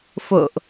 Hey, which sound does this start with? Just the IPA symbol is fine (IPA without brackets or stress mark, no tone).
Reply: f